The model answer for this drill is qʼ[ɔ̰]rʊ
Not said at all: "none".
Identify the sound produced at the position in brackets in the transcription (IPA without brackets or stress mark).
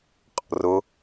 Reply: ɔ̰